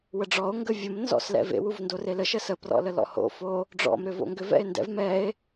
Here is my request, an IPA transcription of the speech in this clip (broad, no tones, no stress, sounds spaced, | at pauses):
w ə ɖ͡ʐ ɔ o̯ ŋ ɡ ə vʲ ə m n z ɔ̰ s l ɛ̰ v ḛ w u v n d o r e l ə ʃ ə s ə p r ɔ̰ l ə l ɔ̰ h o̰ f o | ɖ͡ʐ ɔ̰ m ɾ ʏ v o̰ ŋ ɡ ʏ v ɛ̰ e̯ n d ɛ̰ v m ɛ e̯